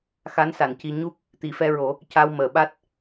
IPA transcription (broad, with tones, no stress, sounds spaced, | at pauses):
x a˧˥ n s a˨˩˨ n c i˧ ɲ u˦˥ k̚ | t̪ i˨˩˨ f ɛ˧ ɹ o˨˩˦ | c a˧ w m əː˨˩˨ ɓ a˦˥ t̚